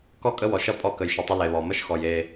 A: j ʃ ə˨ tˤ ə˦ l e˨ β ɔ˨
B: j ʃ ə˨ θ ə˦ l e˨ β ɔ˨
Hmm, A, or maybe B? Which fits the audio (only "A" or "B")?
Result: A